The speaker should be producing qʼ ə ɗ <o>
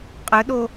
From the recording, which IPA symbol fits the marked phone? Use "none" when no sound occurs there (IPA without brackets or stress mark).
o